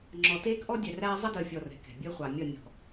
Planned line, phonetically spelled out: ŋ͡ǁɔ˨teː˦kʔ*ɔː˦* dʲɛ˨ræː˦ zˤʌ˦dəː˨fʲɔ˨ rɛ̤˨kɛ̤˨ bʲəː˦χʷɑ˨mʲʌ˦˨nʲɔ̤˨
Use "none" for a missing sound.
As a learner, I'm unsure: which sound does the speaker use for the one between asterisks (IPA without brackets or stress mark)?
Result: ɔ˦